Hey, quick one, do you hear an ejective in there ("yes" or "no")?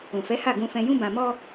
no